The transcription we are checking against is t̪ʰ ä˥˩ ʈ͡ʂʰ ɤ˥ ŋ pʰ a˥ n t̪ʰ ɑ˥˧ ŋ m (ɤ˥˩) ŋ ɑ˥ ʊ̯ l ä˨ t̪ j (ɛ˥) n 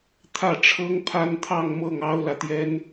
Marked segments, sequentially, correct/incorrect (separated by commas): correct, correct